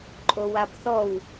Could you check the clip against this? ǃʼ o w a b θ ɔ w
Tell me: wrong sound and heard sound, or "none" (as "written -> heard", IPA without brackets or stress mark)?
none